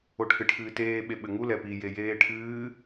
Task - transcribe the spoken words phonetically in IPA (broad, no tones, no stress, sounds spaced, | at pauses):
o ʈʰ ɨ ʈʰ ɨː t eː ɓ e ɓ ɘ ŋ u l ɛ p i j e j eː ʈʰ ɨː